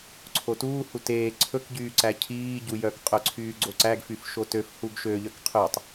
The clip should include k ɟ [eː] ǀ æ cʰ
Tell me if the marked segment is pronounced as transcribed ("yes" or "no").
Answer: no